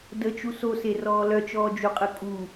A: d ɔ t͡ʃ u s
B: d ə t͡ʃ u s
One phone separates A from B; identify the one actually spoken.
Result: B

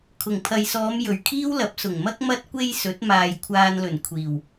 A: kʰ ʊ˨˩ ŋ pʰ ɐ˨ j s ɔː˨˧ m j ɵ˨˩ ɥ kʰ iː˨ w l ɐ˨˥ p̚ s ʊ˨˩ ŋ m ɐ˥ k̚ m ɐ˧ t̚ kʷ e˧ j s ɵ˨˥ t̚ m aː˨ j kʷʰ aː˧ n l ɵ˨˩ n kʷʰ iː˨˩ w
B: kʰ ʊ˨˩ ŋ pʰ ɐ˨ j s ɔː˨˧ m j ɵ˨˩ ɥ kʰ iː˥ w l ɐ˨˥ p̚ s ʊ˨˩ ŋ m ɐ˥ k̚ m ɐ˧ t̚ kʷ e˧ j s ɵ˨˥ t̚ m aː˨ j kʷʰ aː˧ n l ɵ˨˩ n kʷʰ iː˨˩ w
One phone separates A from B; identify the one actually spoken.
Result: B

